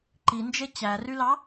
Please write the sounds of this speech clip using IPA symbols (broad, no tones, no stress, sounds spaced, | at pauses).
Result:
ǃ i n d͡ʒ e t͡ɕ æ r y l ɑ